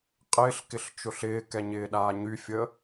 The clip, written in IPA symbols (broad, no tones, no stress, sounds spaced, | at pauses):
qʼ ɪː ɬ k ɪ ɬ t͡ʃ ʊ ɬ ɪː k ɛ ɲ ɪː ɗ aː ɲ y fʲ əː